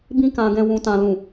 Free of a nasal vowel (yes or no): no